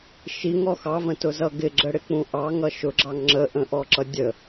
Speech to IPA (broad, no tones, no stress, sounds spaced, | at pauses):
ʃ i ŋ ɔ x ɑ v ə̃ t ʊ z ʌ ɡ ɪ ɡ͡ǁ ə ɽ ɪ k͡p ũ ʔ ɑ ŋ ʌ ʃ ʊ ɡ͡ǁ ɑ ŋ ŋ͡ǁ ə ʔ ə̃ ʔ ɔ ǁ ʌ dʲ ə